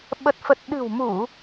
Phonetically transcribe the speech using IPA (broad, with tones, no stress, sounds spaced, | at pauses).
ɓ ə˨˩ t̚ f ə˨˩ t̚ ɗ ɨ̤˨˩ w m u˧˩˨